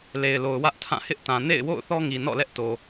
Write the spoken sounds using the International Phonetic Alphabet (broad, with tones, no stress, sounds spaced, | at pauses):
l e˨ ɪ̯ l o˨ ʊ̯ w ä˦ ʔ tʰ ã˦˨ h ɪ˦ ʔ t ã˨ n ḛ˦˨ ɪ̯ w o̰˦˨ ʊ̯ θ ɔ˦ ŋ i˨ n ɔ̰˦˨ l ɛ˦ ʔ t o˨